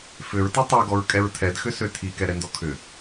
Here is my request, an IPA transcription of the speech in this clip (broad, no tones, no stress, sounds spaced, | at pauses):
f ʏ ɹ t i tˤ ɛ ɡ ɔ ɹ kʼ ɛ ɹ tʰ ɛ d x ʏ s ø tʰ i k ɛ ɾ ɛ n d ɔ kʰ ʏ